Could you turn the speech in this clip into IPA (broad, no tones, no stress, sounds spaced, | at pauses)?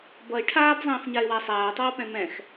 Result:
b ʌ ɪ̯ ʈʰ aː b zˤ ĩː f ɲ a ɪ̯ w a sˤ aː tˤ ʌː p ɛ̃ m ɛ̃ x